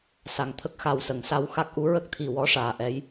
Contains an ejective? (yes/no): no